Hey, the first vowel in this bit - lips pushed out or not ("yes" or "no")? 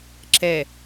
no